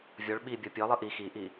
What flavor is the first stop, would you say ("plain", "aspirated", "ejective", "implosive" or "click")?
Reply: implosive